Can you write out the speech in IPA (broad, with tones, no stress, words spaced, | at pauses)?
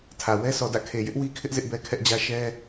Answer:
tʰä˨ wɛ˦sʰɔ˨dä̰˦˨ kʰe˨jɪ˦ʔwi˦kʰɪ˦ʔ zɪ˦ʔbɛ˦kʰɛ˦ʔd͡ʑä˦ ʃɛ˦